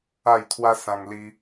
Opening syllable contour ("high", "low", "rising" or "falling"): falling